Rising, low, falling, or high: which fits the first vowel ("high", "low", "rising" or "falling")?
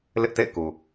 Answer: high